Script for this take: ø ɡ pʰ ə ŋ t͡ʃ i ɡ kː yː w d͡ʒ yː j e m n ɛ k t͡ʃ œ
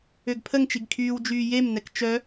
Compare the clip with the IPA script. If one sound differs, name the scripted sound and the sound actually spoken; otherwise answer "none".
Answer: kː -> kʰ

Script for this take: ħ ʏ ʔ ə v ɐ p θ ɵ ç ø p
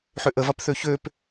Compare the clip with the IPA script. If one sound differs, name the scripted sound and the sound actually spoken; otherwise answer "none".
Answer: ɵ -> ø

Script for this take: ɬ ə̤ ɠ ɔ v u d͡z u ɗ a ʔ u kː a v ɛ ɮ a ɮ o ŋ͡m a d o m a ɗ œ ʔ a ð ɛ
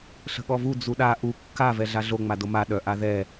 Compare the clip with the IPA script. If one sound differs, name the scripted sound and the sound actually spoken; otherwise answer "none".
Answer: none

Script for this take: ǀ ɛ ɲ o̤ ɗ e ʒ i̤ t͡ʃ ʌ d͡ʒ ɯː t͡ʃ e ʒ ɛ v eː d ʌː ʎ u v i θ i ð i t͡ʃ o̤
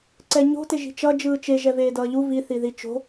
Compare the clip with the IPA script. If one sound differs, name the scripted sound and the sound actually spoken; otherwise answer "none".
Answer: ɗ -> t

